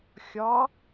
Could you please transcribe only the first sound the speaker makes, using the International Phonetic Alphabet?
xʲ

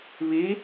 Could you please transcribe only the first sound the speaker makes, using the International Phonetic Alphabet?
β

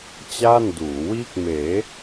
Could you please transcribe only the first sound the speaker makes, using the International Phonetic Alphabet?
t͡ɕ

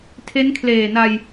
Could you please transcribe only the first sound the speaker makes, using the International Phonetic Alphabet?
tʰ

